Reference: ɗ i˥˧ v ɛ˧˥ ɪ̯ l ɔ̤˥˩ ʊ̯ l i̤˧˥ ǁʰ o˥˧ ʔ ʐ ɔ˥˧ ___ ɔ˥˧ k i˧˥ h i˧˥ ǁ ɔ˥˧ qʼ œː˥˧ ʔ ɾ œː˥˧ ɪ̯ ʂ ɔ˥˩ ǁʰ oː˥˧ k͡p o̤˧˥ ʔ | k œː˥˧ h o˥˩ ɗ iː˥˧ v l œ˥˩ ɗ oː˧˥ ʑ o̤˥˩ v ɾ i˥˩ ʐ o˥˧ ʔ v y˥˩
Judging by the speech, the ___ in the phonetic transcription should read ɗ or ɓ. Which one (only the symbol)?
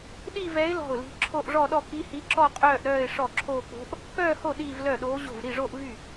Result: ɗ